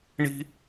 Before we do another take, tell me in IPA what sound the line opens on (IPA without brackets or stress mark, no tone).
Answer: ɳ